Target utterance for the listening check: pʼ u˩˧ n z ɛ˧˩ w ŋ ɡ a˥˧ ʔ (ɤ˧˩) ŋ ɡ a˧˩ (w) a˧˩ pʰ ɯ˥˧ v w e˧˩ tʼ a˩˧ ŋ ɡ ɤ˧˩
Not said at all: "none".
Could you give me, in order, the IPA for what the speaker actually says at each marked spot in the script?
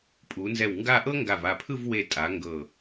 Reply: ɤ˥, v

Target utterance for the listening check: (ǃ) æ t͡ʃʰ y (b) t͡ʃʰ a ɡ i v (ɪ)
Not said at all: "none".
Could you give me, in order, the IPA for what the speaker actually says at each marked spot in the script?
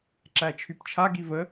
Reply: ǁ, p, ə

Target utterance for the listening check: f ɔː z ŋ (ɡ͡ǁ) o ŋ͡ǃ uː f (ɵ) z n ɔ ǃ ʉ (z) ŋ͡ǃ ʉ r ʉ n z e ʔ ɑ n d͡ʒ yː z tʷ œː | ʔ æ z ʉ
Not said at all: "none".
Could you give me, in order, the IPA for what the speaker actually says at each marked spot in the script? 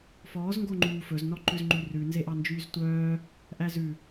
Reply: ɡ, ɵ, z

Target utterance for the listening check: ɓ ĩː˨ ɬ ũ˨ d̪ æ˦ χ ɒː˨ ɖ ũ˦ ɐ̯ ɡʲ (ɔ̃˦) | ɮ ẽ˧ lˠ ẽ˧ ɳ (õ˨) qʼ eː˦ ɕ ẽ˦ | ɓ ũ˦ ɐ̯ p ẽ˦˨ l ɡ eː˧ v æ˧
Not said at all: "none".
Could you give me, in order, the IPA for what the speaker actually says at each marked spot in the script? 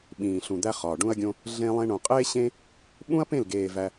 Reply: õ˦, õ˨

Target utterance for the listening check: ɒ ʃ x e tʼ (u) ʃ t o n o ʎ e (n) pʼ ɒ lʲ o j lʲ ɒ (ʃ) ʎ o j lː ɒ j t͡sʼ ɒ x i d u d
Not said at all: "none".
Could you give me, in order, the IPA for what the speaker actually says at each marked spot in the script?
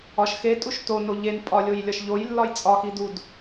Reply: u, n, ʃ

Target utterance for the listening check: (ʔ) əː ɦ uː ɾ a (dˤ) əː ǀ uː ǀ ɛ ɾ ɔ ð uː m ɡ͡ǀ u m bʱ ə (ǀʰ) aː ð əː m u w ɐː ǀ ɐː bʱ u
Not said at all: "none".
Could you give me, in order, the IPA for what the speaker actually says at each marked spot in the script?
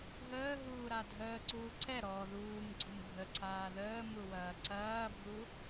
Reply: ɦ, dʱ, ǀʰ

